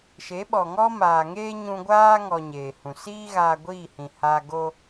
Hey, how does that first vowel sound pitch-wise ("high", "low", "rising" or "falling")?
rising